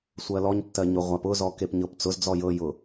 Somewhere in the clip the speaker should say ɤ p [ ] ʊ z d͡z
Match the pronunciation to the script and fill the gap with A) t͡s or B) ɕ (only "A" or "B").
A